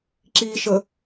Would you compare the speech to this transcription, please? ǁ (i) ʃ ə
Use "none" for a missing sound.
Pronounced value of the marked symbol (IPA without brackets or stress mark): i